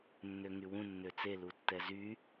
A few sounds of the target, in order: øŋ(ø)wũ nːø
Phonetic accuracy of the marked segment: incorrect: y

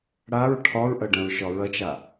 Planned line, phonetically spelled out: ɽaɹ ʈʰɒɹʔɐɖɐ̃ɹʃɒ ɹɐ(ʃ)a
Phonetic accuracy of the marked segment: incorrect: t͡ʃ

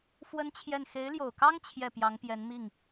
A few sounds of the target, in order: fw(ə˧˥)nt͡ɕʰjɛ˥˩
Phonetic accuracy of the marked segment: incorrect: ə˥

